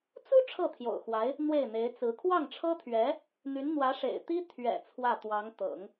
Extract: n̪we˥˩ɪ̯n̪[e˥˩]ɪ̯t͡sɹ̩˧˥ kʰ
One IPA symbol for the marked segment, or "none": e˧˥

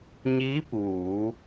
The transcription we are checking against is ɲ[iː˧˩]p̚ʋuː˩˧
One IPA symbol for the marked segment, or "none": iː˧˥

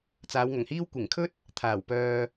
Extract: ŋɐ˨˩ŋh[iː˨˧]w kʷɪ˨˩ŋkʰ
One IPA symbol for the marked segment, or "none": iː˥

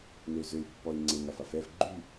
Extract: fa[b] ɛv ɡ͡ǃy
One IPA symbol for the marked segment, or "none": f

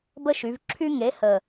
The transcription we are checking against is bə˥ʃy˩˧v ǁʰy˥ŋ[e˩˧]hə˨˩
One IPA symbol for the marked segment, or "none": e˨˥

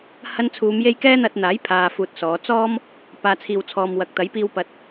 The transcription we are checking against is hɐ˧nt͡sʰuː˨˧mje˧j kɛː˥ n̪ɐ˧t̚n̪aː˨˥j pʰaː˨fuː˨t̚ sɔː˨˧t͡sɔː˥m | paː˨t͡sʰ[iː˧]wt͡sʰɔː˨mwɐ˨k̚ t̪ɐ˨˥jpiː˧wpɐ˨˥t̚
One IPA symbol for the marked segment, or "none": iː˨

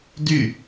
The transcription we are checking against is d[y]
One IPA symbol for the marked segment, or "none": y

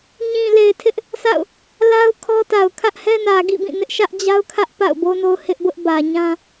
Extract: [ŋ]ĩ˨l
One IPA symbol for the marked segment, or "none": ɲ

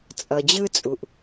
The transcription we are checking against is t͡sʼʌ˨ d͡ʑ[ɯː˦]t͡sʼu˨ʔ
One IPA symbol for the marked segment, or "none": ɯ˦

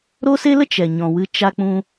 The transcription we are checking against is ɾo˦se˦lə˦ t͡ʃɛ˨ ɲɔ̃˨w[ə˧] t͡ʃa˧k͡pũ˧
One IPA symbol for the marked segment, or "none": ɨ˧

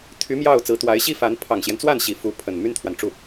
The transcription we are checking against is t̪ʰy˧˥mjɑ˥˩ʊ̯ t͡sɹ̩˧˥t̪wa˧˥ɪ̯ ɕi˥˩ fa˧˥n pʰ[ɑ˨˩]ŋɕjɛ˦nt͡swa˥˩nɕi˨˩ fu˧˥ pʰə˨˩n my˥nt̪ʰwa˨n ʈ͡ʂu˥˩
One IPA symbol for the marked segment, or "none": ɑ˨˩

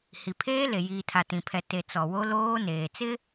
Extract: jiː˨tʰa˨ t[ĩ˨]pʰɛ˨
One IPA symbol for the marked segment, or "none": ĩ˨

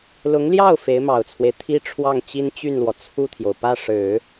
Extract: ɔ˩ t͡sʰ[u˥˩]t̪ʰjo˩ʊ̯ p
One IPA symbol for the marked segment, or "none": u˥˩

